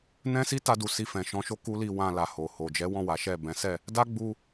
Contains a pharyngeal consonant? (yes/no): no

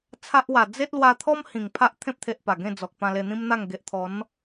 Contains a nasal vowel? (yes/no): yes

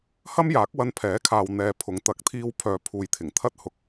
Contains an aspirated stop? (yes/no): yes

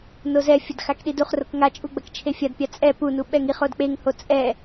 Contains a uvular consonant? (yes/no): yes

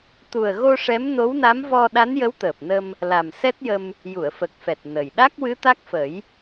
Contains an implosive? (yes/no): yes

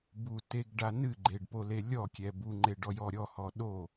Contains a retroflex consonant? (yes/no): yes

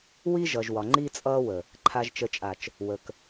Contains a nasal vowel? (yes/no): no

